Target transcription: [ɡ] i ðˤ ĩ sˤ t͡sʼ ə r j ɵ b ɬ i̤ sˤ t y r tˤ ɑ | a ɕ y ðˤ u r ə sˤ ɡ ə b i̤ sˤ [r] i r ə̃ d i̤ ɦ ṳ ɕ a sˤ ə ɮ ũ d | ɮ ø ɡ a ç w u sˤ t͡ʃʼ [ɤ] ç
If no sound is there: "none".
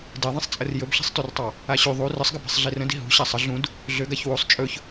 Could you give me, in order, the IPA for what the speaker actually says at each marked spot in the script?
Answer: d, ɮ, ɵ

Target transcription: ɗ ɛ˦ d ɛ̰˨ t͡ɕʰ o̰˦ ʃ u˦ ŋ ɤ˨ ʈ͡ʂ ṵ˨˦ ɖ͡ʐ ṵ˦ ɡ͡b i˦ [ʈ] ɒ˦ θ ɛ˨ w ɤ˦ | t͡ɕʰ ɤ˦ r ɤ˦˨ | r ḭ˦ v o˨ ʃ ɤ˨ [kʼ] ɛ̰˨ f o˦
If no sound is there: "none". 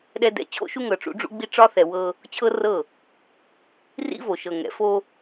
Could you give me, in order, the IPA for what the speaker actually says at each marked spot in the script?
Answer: ʈ͡ʂ, ŋ

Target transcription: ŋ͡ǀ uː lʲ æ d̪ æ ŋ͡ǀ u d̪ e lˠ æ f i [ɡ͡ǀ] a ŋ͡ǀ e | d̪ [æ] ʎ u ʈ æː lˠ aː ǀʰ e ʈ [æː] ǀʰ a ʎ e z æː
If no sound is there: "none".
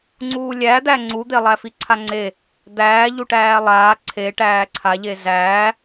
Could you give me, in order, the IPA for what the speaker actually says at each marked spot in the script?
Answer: ǀʰ, æː, æː

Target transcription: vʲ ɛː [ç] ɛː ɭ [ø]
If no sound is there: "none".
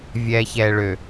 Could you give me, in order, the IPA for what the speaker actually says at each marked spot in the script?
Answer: ç, ø

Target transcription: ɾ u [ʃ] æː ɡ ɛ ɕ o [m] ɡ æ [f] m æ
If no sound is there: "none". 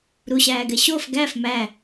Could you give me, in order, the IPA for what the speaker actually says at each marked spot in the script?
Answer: ɕ, f, f

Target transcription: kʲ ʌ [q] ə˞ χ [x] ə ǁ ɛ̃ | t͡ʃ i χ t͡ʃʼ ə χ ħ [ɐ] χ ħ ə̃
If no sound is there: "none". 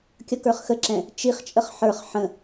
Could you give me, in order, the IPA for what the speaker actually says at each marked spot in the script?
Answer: k, x, ə˞

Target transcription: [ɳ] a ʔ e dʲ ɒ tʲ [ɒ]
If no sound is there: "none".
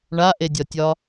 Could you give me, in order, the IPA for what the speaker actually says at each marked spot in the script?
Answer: ɳ, ɒ

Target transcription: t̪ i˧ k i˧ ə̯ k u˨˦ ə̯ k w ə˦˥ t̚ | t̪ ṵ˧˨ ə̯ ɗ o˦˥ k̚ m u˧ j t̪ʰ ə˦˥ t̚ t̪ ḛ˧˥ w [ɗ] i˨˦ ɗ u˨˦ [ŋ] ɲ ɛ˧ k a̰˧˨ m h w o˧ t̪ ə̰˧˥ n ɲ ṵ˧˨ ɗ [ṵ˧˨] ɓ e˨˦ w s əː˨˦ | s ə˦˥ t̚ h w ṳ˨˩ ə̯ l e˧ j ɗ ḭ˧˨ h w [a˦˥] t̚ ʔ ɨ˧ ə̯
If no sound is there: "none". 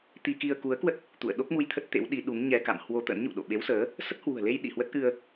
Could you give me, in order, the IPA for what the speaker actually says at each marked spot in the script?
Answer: ɗ, ŋ, o̰˧˨, ə˦˥

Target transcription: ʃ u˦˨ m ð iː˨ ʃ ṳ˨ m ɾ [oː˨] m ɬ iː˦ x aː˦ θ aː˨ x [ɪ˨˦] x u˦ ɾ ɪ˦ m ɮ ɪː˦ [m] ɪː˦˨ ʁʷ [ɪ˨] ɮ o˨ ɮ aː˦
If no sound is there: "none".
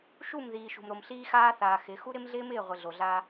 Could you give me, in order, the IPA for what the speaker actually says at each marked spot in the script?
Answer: o˨, ɪ˨˦, m, ɪ˨

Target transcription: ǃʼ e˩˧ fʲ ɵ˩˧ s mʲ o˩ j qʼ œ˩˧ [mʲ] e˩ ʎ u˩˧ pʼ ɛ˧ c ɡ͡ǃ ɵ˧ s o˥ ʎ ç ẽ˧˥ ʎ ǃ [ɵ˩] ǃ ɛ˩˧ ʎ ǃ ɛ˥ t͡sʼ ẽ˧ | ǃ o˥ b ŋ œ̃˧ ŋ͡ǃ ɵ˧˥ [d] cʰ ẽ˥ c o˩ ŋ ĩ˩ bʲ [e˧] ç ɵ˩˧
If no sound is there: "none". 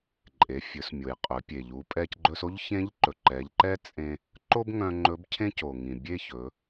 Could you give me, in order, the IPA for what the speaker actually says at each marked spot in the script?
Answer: pʲ, ɵ˩, b, e˥

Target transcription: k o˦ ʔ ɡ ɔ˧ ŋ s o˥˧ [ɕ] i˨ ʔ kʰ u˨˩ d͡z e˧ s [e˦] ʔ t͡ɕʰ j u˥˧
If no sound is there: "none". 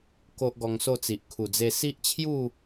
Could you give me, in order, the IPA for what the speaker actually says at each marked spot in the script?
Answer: t͡s, i˦

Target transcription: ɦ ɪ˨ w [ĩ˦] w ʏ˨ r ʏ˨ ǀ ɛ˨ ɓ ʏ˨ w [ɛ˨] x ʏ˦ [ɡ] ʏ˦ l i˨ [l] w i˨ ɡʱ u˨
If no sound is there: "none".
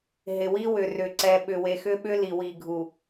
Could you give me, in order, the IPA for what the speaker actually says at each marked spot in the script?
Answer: i˦, e˨, ɓ, none

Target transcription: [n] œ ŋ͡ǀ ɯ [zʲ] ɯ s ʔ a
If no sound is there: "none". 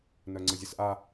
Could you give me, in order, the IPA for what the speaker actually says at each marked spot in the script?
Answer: n, zʲ

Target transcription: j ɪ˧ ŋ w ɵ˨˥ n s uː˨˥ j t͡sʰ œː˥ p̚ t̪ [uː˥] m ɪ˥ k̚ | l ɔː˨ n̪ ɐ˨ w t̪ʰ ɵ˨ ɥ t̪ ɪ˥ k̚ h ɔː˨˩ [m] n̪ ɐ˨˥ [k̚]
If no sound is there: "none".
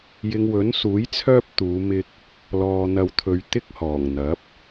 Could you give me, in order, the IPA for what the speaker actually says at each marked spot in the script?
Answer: uː˨˧, ŋ, p̚

